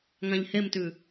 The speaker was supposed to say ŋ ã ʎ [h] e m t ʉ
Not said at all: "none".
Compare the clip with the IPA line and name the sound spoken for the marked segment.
h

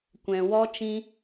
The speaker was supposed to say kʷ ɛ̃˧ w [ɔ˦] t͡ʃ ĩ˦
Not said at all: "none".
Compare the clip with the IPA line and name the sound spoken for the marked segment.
ɔ˦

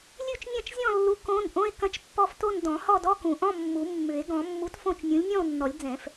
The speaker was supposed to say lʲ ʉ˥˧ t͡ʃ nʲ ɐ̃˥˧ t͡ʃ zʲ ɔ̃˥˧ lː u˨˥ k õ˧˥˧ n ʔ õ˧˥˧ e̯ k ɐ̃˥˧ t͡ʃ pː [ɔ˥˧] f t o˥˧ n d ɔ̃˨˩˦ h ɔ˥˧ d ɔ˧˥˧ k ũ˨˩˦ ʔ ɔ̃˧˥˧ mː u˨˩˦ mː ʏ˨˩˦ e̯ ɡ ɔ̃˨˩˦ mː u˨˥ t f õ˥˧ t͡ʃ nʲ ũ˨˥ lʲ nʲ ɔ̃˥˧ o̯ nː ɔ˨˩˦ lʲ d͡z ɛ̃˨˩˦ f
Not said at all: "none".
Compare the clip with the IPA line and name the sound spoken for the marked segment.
ɔ˥˧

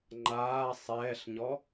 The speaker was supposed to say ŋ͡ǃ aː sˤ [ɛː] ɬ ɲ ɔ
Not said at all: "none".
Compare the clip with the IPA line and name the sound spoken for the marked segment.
ɛː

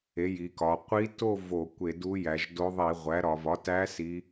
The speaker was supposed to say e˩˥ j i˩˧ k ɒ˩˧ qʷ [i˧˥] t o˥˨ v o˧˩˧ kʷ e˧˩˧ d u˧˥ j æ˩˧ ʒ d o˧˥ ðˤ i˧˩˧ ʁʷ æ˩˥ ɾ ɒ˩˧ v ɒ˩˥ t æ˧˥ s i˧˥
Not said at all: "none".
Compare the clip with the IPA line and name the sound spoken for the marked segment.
i˧˥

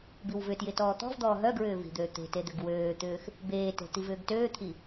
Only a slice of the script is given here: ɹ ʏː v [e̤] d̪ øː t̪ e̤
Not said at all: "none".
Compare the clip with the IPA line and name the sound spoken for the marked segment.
i̤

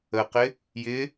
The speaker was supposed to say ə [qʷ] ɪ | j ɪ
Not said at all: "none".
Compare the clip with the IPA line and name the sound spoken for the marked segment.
q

